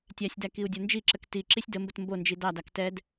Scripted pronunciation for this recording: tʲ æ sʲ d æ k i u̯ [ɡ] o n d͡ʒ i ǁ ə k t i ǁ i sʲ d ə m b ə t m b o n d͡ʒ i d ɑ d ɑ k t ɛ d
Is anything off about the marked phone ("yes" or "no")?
yes